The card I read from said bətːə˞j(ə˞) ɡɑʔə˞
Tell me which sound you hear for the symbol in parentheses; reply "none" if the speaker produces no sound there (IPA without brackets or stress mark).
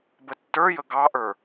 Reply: ə